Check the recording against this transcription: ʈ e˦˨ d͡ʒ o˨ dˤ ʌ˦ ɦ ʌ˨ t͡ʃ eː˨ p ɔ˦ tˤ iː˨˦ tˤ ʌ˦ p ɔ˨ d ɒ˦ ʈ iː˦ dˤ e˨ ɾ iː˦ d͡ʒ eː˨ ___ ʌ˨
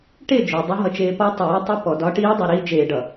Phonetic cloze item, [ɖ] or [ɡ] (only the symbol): ɖ